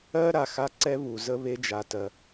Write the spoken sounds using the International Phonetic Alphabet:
ɜ˦ ɾ a˨ x a˦ ǀ ɛ˦ β u˨ z ə˦ β e˦ d͡ʒ a˨ t ɜ˧

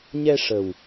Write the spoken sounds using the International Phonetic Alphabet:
ɲ ɛ˧ ʂ ə˨˩ w

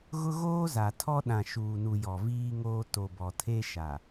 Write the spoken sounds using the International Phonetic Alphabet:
ɣ ʊ˦ ɣ oː˦ z a˨ tʰ ɔ˦ ɗ ã˨ ʃ uː˨ n u˨ j ɔ˨ v iː˦ ŋ oː˦ t o˨ b ɔ˨ tʰ e˦ ʃ a˨

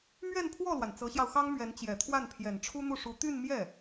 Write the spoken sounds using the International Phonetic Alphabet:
m ɥ ɛ˥˧ n pʰ w ɔ˥˩ l w a˩ n t͡s ɤ˧˥ ɕ j ɑ˧ ʊ̯ x ɑ˥ ŋ m ɥ ɛ˧˥ n t͡ɕ j ɛ˨˩ t̪ʰ w a˥˩ n pʰ j ɛ˨˩ n ʈ͡ʂʰ u˥ n̪ u˥˩ ʂ u˧˥ t̪ y˥˧ n m j ɛ˥˩

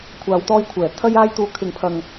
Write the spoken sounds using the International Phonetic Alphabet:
kʷʰ aː˨˧ w t̪ ɔː˧ j kʷʰ ɛː˨˩ t̪ʰ ɐ˧ j aː˧ j t̪ uː˨ kʰ ɪ˨ ŋ pʰ ɐ˨ ŋ

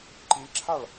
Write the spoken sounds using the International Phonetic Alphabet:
ǃ i ǁʰ a ɭ

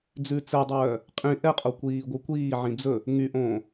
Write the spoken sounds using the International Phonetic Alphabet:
d͡z ʉ t͡s ɛ dˤ œː | qʼ ĩ ʔ ɛ qʼ o kʷ iː ɡʷ œ kʷ iː ʕ ĩ d͡z ɵ | ŋ y ʔ õː

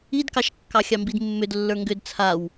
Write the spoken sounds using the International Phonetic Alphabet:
i d k ɑ ʃ kː ɑ xʲ ɑ m b i d mː ʏ d lː ə˞ ŋ ɡ ʏ d t͡sʰ a w

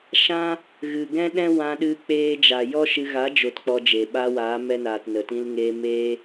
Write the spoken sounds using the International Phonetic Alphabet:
ʃ ã˦ | ɣ ɨ˨ ɡ ɛ̃˦ ɗ ɛ̃˦ w ã˧ ɗ ɨ˦ k͡p eː˦ d͡ʒ a˨ j ɔ˦ ʃ ɨ˧ ɣ a˨˦ d͡ʒ o˨ t k͡p ɔ˧ d͡ʒ e˨ ɓ a˧ w aː˨˦ m ɛ˧ n aː˨ t n ə˨ t ĩ˧ l ŋ eː˧ m eː˦

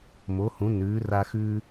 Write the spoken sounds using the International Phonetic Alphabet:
m o˨˥ h ũ˨˥ n ʉː˨˥ r a˦ x ʉː˦

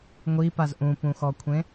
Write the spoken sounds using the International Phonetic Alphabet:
ŋʷ i p a z ʔ ũ p ũ x ɔ kʷʰ ẽ

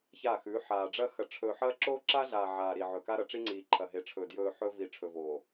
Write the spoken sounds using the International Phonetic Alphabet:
ç aː˦˨ x ʉː˨˦ ħ aː˨ ɖ͡ʐ ɐ˦ x ɐ˨ ʈ͡ʂʰ ɵː˨ ħ ɐː˦ ǁ oː˦ ǁ a˦ ɮ aː˨ ʕ aː˨ ɾ i˨ ʕ ɵ˨ k a˦ ɾ ɐ˨ ʈ͡ʂ i˦ ŋ͡ǀ iː˨ ǃʰ ɐ˨ ɦ e˨ ʈ͡ʂʰ ɵː˨ d j ɵː˨ ħ ɵː˦ v i˨ ʈ͡ʂʰ ɵ˨ v oː˨

